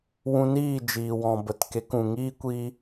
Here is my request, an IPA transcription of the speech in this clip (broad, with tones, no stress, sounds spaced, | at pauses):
w ũ˧ n iː˦˨ d͡ʒ iː˨ w ɔ̃˨ b ə˨ t k e˨˦ k ũ˨ ŋ iː˦ kʷ iː˧